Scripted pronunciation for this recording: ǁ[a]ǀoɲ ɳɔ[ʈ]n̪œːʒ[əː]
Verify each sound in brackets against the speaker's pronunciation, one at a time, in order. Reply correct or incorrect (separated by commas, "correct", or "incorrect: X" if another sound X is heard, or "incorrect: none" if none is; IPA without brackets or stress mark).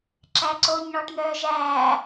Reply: incorrect: æ, correct, incorrect: æː